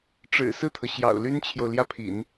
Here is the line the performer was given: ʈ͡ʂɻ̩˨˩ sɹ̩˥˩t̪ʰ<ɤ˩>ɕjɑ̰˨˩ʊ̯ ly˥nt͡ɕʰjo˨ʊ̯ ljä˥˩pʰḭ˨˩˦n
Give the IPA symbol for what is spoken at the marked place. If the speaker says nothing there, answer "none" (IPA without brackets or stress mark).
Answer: ɤ˩